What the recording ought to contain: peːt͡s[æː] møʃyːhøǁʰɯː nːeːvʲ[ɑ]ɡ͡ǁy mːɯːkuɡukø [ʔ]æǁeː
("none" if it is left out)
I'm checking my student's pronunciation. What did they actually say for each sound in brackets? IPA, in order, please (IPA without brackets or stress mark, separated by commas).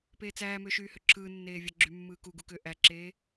æː, ɑ, ʔ